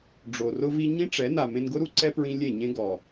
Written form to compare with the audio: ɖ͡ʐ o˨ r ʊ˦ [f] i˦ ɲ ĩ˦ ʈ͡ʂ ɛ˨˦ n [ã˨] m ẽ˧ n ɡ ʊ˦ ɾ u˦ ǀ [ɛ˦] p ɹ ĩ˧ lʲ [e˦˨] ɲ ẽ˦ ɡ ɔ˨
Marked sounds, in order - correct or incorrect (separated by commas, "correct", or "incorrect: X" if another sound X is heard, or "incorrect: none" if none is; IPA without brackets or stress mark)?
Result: incorrect: v, incorrect: a˨, correct, correct